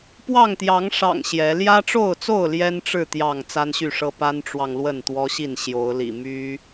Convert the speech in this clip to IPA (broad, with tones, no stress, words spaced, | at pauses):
pwɑ˥˨ŋt̪jɑ˨˦ŋʂɑ̰˨˩ŋ ɕjɛ˨˦ ljä˦ʈ͡ʂo˥˨ʊ̯t͡so˥˨ʊ̯ ljɛ˦nʈ͡ʂɻ̩˥˨ t̪jɑ˥˨ŋ t͡sa˦nɕy˥˨ʂɤ˦ pa˦nʈ͡ʂwɑ˨ŋ lwə˥˨nt̪wɔ˦ɕi˥˨n ɕjo˨˦ʊ̯lḭ˨˩ my˦